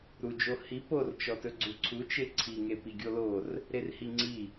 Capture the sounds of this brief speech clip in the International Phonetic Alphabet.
ɾ u d͡ʒ o h i p o r t͡ʃ ɔ t ɵ ɡ͡ǀ u ǀʰ u t͡ʃ e ǀʰ i ŋ e p i ɡʲ o l o r | ɾ e r h i ŋ͡ǀ i

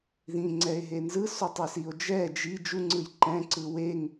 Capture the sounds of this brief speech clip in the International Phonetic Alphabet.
ð ĩ ŋ͡ǀ ɛ e̯ ɦ e n z ɯ s o tˤ e s i o̯ d͡ʒ ɛ d͡ʒ i d͡ʒ u ŋ͡ǀ ɯ j ǃ ɛ̃ ǀ ɯ w e ŋ

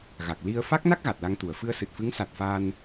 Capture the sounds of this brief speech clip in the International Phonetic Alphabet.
ɣ a˨˩ k̚ l i˧ ə̯ f a˦˥ k̚ n a˦˥ k̚ ɣ a˨˩ t̚ l a˧ ŋ t̪ u˨˩ ə̯ f ɨ˧ ə̯ s ɨ˨˩ t̚ f ɨ˧˥ ŋ s a˨˩ t̚ f a˧ n

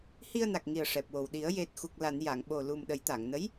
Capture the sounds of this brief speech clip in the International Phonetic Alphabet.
h i˧ ə̯ n a˨˩ k̚ ŋ i˨˩ ə̯ ʂ ɛ˨˩ p̚ w o˨˩ w ɗ i˨˩˦ ə̯ j e˨˩ t̚ x u˨˩ k̚ l a˨˩˨ n j a˨˩˨ ŋ ɓ o˨˩ l u˨˩ m ɗ ə˨˩˦ j t̪ a˨˩˨ ŋ n ə˧˥ j

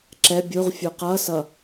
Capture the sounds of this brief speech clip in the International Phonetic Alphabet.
ǁ ɛ bʲ u ʁ fʲ u q ʌ s ʌ

